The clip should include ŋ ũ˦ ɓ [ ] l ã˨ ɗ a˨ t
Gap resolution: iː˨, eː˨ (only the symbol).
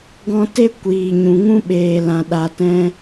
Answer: eː˨